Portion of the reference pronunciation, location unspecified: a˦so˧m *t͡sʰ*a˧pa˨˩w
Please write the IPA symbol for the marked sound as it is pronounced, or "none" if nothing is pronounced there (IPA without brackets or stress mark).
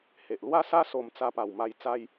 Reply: t͡s